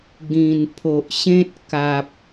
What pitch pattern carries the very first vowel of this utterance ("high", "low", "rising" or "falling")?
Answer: low